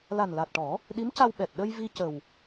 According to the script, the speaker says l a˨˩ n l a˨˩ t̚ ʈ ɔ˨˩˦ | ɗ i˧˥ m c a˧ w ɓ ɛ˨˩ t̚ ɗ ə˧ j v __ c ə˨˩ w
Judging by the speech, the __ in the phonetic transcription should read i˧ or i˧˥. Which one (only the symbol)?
i˧